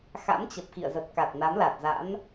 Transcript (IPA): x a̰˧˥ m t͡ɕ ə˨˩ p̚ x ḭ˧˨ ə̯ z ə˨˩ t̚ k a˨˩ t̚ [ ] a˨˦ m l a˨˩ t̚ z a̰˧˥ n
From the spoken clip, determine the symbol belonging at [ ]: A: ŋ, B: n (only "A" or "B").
B